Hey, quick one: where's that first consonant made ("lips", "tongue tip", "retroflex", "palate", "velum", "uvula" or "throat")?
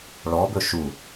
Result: retroflex